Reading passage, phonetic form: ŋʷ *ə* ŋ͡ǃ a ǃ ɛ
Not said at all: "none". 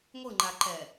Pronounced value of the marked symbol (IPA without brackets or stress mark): ɯ